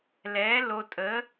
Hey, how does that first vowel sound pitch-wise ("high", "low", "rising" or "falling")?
rising